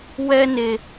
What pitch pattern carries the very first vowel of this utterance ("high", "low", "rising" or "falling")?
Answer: high